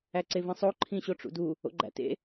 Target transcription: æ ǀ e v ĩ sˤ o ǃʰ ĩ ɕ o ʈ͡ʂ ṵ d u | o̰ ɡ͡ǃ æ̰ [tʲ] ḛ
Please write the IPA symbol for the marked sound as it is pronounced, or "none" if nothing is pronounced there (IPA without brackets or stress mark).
t